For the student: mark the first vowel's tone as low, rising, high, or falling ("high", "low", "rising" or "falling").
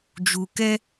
low